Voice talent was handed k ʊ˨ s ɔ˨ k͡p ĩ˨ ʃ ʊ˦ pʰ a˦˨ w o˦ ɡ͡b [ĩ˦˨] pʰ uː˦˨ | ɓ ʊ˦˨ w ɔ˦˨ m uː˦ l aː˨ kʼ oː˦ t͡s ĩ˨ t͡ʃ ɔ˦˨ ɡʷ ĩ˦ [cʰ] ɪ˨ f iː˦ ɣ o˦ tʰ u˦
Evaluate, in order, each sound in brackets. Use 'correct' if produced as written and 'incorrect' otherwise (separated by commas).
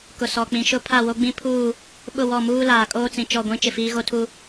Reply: incorrect, incorrect